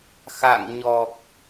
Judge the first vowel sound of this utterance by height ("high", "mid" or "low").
low